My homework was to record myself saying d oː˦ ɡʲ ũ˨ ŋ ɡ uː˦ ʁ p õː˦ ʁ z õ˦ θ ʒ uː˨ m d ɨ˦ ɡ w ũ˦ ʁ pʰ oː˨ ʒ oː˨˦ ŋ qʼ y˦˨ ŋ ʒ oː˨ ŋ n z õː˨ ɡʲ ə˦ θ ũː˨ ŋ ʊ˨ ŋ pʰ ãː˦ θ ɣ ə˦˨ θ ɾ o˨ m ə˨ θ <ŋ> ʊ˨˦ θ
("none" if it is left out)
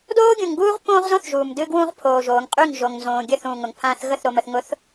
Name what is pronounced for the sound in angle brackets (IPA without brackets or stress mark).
ŋ